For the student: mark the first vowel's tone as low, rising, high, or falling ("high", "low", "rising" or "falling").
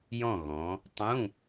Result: falling